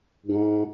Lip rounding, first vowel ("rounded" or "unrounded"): rounded